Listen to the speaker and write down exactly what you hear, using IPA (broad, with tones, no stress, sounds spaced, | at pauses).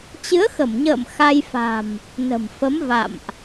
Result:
t͡ɕ ɨ˨˦ ə̯ x ə˧˩ m ɲ ə̰ː˧˨ m x a˧ j f a̤˨˩ m | n ə̤˨˩ m f ə˨˦ m v a̰˧˨ m ʔ